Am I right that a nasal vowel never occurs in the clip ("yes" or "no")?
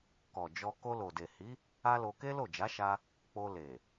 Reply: yes